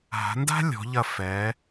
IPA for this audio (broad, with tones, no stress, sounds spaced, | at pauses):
ɦ a̤˩˧ n d a̤˥ lʲ ɔ̤˩˧ ʎ ɐ˧˩ f ɛ˩˧